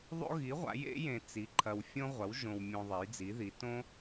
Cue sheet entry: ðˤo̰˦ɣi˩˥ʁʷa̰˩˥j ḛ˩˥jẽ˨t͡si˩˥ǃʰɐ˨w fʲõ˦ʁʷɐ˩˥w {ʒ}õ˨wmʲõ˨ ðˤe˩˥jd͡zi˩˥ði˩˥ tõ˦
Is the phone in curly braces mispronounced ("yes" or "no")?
no